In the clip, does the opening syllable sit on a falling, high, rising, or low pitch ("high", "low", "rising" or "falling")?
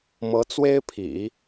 rising